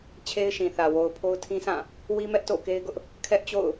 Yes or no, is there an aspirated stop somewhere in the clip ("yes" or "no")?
yes